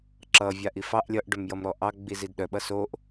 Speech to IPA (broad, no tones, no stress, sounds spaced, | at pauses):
ǁ ʌ vʲ a ʔ i f ɑ ʔ lʲ ʌ ʔ ɖ œ m j ʌ m ɾ ɔ ʔ ɑ ɡ͡b i z i d ɗ œ ɓ ʌ s o ʔ